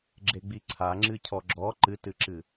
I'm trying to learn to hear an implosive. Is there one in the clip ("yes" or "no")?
no